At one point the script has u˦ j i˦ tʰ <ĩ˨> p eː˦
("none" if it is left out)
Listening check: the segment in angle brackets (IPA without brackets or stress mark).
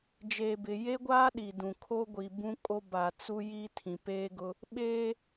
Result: ĩ˨